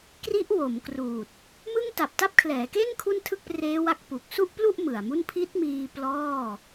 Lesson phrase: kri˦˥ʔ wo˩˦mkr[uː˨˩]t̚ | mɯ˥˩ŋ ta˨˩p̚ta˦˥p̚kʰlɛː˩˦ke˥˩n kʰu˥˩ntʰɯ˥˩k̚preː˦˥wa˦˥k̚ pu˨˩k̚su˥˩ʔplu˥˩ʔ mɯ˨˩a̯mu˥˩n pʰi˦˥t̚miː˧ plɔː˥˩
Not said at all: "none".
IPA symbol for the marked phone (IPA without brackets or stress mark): uː˨˩